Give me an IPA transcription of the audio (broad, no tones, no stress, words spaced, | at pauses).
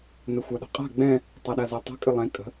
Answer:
nəxʷaɗə̤qʼa̤ ɡ͡bɛ̃ | tˤaɗazɛtˤə̤ kʼɨlˠɛ̃ kʼə̤